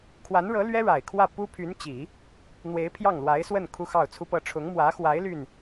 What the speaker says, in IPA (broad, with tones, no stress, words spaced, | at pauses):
kʰwa˧˥nɻɤ˧˥ lɥɛ˥ɻa˨˩ɪ̯kʰwä˥˩ pu˥pʰy˧˥nt͡ɕi˨˩˦ | n̪we˧˥ɪ̯pʰjɑ˥˩ŋlwa˧˥ɪ̯swə˥˩n kʰu˥xɑ˥˩ʊ̯t͡sʰu˥pɤ˥ ʈ͡ʂʰʊ˧˥ŋmwä˧˥xwa˧˥ɪ̯ ly˥˩n